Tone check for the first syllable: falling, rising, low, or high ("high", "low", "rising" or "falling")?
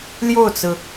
falling